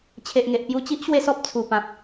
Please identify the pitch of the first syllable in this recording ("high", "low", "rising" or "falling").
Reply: low